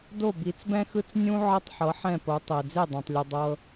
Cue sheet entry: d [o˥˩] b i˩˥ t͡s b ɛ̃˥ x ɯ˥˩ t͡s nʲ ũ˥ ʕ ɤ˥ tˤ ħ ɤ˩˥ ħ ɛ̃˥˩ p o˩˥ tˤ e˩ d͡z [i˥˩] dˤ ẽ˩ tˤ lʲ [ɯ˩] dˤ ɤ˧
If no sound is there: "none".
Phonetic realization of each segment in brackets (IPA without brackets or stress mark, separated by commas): o˥˩, e˥˩, u˩